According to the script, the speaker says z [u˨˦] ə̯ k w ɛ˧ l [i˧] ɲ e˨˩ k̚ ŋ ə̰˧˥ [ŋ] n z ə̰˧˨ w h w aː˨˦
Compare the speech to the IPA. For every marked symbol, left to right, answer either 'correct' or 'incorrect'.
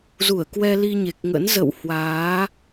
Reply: incorrect, correct, incorrect

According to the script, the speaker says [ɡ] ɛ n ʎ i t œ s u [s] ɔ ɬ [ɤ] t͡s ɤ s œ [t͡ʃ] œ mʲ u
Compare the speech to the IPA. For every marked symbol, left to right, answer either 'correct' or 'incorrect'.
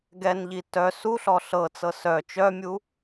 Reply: correct, incorrect, correct, correct

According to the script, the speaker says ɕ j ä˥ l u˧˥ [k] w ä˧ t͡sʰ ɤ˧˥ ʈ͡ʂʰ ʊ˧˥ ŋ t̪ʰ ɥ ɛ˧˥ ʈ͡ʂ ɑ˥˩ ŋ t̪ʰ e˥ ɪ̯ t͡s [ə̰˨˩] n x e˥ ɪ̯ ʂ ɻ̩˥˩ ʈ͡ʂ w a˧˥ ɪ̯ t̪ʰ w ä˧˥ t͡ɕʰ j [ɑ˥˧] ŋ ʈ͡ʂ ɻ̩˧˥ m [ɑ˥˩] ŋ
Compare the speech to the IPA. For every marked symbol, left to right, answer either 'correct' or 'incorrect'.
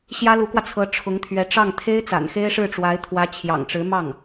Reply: correct, incorrect, incorrect, correct

